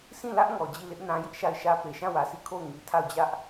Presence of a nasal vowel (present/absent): present